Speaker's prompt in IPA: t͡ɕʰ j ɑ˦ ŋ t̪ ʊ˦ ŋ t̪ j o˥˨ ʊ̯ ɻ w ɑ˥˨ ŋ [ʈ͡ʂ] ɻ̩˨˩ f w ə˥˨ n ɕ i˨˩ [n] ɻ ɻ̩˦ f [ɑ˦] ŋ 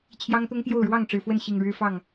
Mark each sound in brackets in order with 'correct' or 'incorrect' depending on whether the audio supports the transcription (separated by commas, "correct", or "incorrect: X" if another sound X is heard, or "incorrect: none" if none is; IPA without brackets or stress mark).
correct, incorrect: ŋ, incorrect: ɑ˥˨